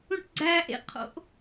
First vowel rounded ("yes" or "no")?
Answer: yes